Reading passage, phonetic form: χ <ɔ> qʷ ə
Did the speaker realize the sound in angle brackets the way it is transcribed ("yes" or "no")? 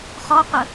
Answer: yes